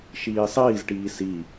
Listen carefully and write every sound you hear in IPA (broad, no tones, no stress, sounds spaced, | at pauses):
ʃ iː sˤ iː z ʈ iː s i